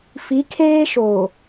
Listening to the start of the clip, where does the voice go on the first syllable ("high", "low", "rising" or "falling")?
rising